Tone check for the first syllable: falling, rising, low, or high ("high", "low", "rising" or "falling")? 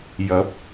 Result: rising